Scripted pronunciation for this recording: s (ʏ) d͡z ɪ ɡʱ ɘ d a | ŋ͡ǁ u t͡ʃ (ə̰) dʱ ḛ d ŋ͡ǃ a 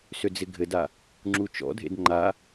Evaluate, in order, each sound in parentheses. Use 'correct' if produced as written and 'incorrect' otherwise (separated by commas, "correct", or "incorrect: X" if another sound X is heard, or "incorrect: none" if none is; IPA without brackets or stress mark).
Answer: correct, incorrect: ɔ̰